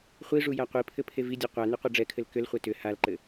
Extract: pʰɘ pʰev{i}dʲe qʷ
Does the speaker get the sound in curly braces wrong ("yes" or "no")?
no